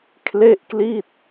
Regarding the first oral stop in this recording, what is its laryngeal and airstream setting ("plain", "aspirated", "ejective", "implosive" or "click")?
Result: aspirated